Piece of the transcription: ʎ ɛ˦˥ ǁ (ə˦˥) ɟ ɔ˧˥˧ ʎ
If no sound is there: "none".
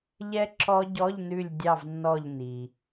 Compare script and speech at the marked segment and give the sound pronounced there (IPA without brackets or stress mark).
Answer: ɔ˦˥